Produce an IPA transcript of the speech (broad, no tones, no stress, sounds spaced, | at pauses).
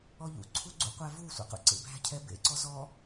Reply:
ɔ ʎ ṵ ǀʰ u ɡ͡ǀ ṵ qʷ æ v u sʷ æ̰ q ṵ ǀ ḛ b æ̤ cʰ ɛ b ḛ ǀ ɔ z ɔ